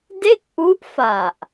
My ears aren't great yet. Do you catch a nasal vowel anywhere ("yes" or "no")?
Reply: no